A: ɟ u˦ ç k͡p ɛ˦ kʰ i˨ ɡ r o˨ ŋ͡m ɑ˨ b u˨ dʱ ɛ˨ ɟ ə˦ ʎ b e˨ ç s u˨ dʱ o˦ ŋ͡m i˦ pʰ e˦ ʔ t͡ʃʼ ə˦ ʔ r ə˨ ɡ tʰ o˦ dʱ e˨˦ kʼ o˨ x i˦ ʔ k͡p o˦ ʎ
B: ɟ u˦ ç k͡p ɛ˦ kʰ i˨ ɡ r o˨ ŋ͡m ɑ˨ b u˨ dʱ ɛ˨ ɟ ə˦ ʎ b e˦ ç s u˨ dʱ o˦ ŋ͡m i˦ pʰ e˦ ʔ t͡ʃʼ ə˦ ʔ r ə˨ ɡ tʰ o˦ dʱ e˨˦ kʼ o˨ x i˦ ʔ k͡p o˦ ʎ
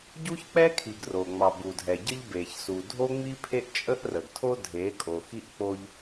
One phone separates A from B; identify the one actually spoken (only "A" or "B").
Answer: A